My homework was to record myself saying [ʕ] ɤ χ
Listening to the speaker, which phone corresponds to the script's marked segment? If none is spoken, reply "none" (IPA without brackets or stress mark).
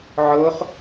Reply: ʕ